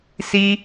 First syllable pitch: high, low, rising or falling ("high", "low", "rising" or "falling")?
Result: high